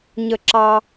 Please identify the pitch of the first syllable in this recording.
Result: falling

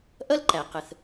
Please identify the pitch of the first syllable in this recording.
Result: high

